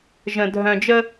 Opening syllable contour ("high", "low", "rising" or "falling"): low